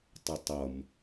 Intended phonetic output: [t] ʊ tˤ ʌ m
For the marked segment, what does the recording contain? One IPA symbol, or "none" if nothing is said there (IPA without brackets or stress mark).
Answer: tˤ